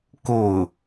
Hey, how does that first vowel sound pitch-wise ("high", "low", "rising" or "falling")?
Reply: falling